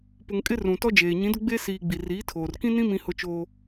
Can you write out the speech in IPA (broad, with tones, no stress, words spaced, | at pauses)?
pʊ˨ŋkʼɪ˦ rũ˨tɔ˦d͡ʒeː˨ ɲĩ˨˦dʊ˦ɡ͡be˦siː˨ ɡ͡bi˨riː˨˦tʰoː˨r kĩ˦nĩ˦ mĩ˦hʊ˦t͡ʃoː˦